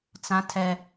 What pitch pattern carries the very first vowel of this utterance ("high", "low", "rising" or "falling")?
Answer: high